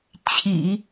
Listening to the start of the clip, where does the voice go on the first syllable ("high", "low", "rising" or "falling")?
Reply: low